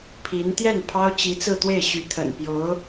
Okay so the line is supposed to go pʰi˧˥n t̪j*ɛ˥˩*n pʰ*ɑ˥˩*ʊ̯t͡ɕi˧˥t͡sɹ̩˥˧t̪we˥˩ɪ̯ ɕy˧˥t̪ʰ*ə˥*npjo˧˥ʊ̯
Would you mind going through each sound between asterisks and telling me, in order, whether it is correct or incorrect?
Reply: correct, incorrect: ɑ˥, incorrect: ə̰˨˩

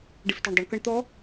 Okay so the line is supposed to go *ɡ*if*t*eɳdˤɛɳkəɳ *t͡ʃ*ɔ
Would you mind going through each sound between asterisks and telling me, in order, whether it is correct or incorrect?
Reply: incorrect: ɖ, correct, incorrect: t̪

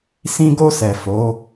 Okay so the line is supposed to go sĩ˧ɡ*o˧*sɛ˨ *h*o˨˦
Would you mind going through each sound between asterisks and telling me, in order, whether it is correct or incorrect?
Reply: correct, incorrect: f

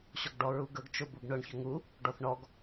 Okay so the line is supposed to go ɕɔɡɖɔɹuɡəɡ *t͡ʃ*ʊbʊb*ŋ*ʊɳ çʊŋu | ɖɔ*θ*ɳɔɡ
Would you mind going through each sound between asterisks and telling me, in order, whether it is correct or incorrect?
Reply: correct, incorrect: ɳ, correct

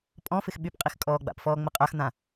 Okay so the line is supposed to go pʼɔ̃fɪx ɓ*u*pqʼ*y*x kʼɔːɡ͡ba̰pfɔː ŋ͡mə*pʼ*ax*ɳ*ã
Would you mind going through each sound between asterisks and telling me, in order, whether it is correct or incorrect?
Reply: incorrect: y, incorrect: i, incorrect: qʼ, incorrect: n̪

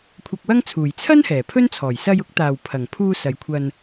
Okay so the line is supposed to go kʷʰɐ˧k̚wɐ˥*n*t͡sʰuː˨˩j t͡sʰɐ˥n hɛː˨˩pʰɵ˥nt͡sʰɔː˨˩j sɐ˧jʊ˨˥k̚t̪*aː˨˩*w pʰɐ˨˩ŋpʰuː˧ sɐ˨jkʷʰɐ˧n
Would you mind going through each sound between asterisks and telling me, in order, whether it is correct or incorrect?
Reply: incorrect: ŋ, correct

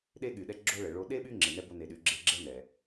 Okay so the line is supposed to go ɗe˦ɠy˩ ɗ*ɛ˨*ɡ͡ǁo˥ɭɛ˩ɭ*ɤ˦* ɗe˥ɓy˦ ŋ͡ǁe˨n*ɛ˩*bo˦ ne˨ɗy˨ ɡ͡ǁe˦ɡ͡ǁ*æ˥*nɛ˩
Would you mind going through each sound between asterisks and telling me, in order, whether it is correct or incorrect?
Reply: incorrect: ɛ˦, incorrect: o˦, incorrect: ɛ˥, incorrect: ɛ˥

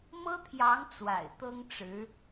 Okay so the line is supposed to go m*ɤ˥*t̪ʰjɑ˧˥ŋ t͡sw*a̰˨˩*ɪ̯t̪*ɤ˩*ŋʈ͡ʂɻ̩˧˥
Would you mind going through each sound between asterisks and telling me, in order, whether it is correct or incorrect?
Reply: correct, correct, incorrect: ɤ˥

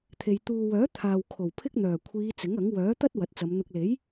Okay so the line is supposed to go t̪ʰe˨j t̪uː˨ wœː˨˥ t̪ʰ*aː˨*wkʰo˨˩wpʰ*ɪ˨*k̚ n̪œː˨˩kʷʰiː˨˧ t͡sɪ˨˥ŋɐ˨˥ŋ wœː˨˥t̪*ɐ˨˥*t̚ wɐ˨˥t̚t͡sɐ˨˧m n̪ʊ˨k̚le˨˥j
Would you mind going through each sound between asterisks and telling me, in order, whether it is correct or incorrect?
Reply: correct, incorrect: ɪ˥, incorrect: ɐ˥

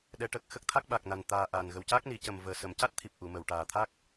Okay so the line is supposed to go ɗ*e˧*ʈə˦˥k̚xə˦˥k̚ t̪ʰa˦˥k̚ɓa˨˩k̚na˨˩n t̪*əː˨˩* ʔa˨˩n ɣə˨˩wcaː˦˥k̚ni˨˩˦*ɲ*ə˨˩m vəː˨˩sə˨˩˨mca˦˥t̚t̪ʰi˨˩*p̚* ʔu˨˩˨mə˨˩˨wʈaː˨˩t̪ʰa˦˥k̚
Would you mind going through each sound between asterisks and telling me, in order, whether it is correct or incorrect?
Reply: incorrect: ɛ˧, incorrect: aː˨˩, incorrect: c, correct

